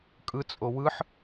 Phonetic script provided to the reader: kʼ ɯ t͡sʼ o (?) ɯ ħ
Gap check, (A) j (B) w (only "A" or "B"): B